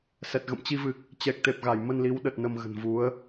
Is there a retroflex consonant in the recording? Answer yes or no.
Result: no